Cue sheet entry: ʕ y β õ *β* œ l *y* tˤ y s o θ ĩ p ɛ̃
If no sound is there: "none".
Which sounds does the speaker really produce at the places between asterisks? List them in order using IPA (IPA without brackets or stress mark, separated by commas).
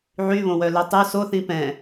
w, ø